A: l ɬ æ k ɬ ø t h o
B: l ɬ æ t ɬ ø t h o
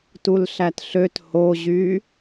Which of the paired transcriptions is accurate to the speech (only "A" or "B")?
B